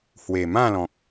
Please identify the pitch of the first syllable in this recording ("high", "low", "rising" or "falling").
low